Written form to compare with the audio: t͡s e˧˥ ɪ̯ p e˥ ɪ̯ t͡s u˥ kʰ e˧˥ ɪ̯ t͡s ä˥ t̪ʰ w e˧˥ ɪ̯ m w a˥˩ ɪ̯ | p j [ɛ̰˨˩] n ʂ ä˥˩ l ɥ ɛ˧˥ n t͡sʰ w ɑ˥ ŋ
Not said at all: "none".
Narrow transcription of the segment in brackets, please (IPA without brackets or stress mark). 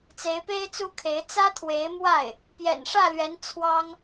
ɛ̰˨˩